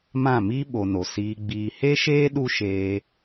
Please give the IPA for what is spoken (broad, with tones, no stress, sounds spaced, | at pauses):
m ã˦˨ m i˦ ɓ o˨ n o˨ s iː˧ ɡ͡b iː˧ h e˦ ʃ eː˦ ɗ u˦ ʃ eː˧